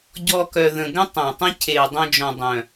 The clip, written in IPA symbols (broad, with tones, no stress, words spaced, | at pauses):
ɟɔ˧kœ˨ðə̃˨ɡə̃˦ tˤæ̃˨tˤə̃˦cʰe˨ dˤœ̃˧d͡ʒɔ̃˨ dˤœ̃˨